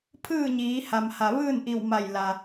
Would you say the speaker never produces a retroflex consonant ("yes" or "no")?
yes